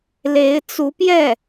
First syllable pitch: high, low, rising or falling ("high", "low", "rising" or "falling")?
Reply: rising